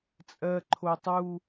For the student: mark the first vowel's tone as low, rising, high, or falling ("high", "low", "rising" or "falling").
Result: low